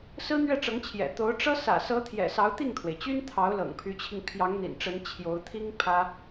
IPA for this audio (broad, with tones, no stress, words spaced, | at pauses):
sɹ̩˥n̪ɥɛ˥˩ʈ͡ʂɤ˧˥ŋt͡ɕʰjɛ̰˨˩ t̪o˧˥ʊ̯ʈ͡ʂɤ˥ sä̰˨˩sɤ˧˥t̪ʰjɛ̰˨˩ sɑ˧˥ʊ̯t̪i˥˩ŋt̪ʰwe˩ɪ̯t͡ɕy˥n t̪ʰɑ˧˥ʊ̯ lɤ̰˨˩ŋpʰy˧˥t͡ɕʰi˧ŋ pʰjɑ˧˥ŋn̪ḭ˨˩nʈ͡ʂə˧˥n t͡ɕʰjo˧˥ʊ̯t̪ʰi˥ŋ pʰä˥